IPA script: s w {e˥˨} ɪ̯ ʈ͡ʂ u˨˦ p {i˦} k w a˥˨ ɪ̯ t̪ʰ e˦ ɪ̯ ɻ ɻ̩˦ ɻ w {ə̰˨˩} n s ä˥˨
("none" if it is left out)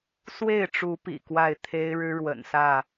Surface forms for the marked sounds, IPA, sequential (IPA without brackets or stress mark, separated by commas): e˥˨, ḭ˨˩, ə̰˨˩